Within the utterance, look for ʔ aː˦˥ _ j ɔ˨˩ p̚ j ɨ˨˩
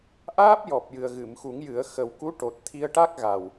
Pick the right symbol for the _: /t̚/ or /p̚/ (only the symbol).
p̚